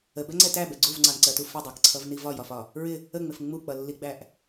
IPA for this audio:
ə b ɛ ŋ͡ǀ ɛ t æ b ɛ ɡ͡ǀ u v ŋ͡ǀ ɑ n ǀ ɜ t u f ɪ dˤ ɜ k ǀʰ ʌ v n i v ɒ j ɒ f ɒ | ɹ ɪ | ə ŋ͡m ɪ f ŋ͡m u k͡p ʌ lː i ɡ͡b æ ʔ

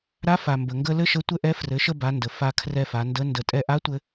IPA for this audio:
ɾ a˧˥ f a˩ m b ə˩ ŋ ɡ ə˧ l ɘ˥ ʃ ə˧˥ tʷ ɘ˥ ʔ ɛ˧˥ f r ɘ˩˧ ʃ ə˧ b a˩˧ n d ə˩ f a˧ kʰ r ɛ˧ f a˩˧ n d ə˧˥ n d ə˧ tʼ ɛ˧ ʔ a˧˥ tʷ ɘ˧

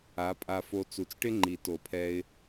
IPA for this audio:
a˩˥ pʼ a˧ f o˧ t͡s u˩˥ t͡s ʈ ɪ˥ ŋ͡ǃ i˨˩˦ t o˨˩˦ pʰ ɛ˧ ɪ̯

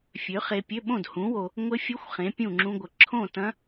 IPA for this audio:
fʲ ø˨˥ χ e˧ pʲ ø˧˥˧ ɓ õ˥˨ d h ũ˨˥ w o˧ | ŋʷ ɪ˦˥ fʲ ʊ˦˥ xʷ χ ẽ˨˥ pʲ ũ˥˨ ŋ͡ǁ ũ˦˥ ɡʷ ə˧ ǁʰ õ˥˨ t ɐ̃˦˥

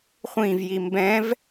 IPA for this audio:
χʷ ĩ v j i m b ɛ̃ v

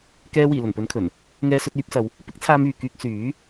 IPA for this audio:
k ɛː˧ w iː˨˩ l ɵ˨˩ n p ɵ˨˥ n kʰ ɵ˨˩ n | ŋ ɛː˧ s ɵ˧ t̚ yː˨˥ p̚ s ɐ˨˧ w | p ɪ˥ k̚ t͡sʰ aː˧ m yː˨ k yː˧ k̚ s yː˨˥

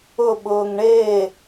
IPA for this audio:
ʊ ɓ ʊː ŋ ɳ eː

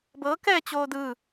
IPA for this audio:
b ɤ k ɛː t͡ɕ oː d ɯ

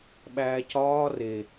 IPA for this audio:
ɓ æː c ɒː r e

